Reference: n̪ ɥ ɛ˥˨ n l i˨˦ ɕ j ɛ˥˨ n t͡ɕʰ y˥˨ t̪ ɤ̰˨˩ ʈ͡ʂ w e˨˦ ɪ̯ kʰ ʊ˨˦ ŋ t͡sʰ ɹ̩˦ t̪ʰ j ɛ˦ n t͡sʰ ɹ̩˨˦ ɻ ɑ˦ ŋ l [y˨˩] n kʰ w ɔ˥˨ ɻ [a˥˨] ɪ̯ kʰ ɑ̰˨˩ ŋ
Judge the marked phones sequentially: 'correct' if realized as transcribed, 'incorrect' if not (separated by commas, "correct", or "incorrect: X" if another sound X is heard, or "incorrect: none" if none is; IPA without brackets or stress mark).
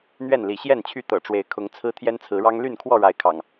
incorrect: y˥˨, incorrect: a˨˦